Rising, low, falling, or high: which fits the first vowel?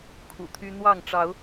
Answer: low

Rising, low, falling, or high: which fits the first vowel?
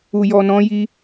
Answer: low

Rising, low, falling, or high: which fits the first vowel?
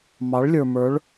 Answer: rising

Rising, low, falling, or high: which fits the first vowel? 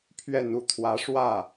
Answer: falling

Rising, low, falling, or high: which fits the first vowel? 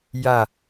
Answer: falling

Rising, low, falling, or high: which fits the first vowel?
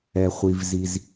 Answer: low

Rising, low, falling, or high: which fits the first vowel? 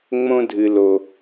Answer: high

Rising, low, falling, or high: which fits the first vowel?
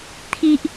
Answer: high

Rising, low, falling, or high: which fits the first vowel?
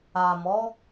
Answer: low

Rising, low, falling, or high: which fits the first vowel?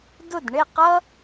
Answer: falling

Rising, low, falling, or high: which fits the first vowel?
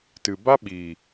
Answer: low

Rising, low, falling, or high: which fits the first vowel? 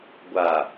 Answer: low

